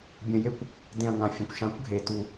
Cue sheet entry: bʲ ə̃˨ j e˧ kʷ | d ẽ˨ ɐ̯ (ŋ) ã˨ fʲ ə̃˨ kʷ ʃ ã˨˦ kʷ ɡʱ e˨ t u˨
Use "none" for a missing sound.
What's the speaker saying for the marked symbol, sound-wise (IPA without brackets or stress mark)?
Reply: ŋ